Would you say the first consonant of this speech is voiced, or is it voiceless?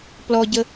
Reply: voiceless